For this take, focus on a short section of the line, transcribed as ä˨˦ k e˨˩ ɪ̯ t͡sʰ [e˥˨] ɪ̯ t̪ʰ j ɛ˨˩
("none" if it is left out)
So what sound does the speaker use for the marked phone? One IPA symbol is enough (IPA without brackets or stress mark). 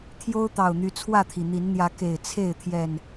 e˥˨